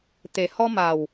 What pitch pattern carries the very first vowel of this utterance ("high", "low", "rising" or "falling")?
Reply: low